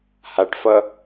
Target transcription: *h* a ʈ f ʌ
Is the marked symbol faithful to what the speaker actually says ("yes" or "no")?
yes